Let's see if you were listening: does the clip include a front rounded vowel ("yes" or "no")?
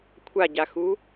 no